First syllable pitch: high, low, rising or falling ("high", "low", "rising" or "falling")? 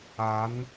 rising